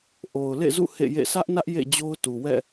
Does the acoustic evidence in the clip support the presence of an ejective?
no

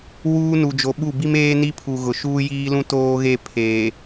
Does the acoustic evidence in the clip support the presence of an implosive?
yes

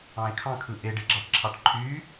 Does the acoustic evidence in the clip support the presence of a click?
yes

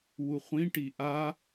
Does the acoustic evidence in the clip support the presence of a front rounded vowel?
no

